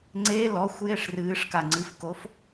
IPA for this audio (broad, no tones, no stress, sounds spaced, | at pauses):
ŋ͡ǀ e l ɔ xʷ j e ʂ r ɨː ʂ k a ŋ͡ǀ ɨ f k o f